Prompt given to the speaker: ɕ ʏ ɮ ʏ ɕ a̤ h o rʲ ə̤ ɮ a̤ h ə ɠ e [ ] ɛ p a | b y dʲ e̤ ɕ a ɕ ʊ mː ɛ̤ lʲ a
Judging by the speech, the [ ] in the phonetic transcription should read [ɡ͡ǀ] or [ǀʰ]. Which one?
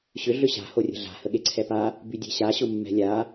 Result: ǀʰ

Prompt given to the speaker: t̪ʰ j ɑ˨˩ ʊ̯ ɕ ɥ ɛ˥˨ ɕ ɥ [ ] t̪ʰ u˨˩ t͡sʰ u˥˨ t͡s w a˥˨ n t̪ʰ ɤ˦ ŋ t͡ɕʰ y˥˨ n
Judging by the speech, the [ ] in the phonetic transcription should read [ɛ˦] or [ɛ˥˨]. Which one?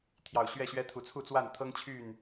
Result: ɛ˦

